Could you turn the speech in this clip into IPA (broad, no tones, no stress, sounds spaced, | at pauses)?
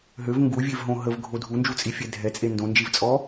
ɦ ø v ŋ ɡ u vʲ e v ɦ õ ɦ ə v ɡʱ o dʱ u n d͡ʒ u t͡sʼ i fʲ ɛ dʱ ɛ t͡sʼ e n d õ n d͡ʒ i v t͡sʼ ɔ